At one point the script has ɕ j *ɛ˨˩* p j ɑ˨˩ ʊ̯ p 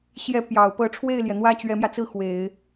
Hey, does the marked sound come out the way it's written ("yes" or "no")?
no